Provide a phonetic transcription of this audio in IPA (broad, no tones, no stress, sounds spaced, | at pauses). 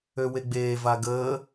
ø w e ɡ͡b eː v a ɡ əː